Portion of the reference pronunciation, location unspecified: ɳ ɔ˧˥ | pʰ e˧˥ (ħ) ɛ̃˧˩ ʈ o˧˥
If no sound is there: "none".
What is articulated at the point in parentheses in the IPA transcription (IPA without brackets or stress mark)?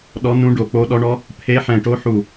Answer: ħ